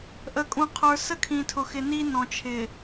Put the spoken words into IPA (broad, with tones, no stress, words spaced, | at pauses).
ʔə˨kʼũ˨qʰə˞˨ sə˦kʰĩ˨tʰʊ˨xɪ˨ ni˦nɔ̃˨ t͡ʃʰɪ˨